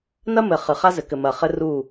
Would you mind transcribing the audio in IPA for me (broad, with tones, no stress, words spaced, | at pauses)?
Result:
nɐ˦mɘ˨ χɨ˨χa˦zɘ˨ kɘ˨mɐ˨χɘ˦ ru˦˨